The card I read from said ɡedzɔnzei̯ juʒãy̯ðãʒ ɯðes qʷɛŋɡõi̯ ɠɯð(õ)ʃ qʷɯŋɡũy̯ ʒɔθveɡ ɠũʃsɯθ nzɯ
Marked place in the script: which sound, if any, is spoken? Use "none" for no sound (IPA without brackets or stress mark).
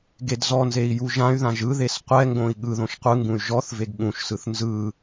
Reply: õ